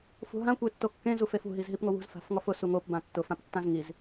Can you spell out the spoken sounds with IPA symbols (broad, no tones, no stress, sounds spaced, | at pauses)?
f ṳ ɦ ã kʷ e tː o kː ẽ z u f e f ṳ ɦ i z ɦ i p ŋ o w ṳ z f a̤ f ŋ ɔ f ʊ s u ŋ o p b ã tː ʊ f ã p tː ã z ŋ i z